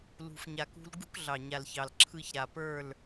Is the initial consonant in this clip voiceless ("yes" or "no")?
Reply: no